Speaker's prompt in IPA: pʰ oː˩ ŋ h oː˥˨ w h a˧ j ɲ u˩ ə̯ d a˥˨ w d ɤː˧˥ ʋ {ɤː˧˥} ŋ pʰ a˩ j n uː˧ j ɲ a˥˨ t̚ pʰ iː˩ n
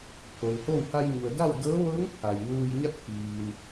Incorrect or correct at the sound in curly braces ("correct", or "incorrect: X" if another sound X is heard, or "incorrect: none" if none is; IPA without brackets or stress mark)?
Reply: correct